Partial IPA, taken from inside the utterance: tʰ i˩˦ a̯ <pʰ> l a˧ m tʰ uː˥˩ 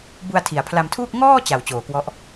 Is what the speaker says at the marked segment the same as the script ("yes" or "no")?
yes